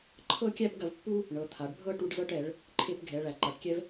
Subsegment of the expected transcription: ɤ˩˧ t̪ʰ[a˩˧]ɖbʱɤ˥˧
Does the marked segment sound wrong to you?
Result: no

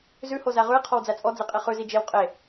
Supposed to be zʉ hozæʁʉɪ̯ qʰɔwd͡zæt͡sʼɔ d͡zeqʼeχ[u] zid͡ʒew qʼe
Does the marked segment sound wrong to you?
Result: yes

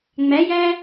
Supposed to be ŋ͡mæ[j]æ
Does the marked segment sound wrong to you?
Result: no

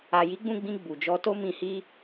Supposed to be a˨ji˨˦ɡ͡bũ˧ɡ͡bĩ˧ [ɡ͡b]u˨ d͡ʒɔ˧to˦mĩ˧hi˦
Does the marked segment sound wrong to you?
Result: no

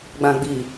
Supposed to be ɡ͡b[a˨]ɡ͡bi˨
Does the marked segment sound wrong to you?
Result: yes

